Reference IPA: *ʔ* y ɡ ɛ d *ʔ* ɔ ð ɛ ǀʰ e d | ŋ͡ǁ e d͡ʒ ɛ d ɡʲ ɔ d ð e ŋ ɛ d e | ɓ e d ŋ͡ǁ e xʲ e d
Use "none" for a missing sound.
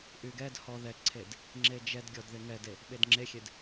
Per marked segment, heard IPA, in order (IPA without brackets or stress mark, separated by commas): ʔ, h